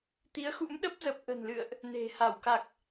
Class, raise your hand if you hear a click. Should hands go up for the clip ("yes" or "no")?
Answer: no